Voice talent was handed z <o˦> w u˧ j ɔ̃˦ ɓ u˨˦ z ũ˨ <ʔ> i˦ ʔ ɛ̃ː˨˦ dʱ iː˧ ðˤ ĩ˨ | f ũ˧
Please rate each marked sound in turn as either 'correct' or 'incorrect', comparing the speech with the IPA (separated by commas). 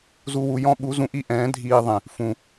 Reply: incorrect, correct